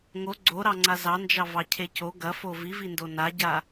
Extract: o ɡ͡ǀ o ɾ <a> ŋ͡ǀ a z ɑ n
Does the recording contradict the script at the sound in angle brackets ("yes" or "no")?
yes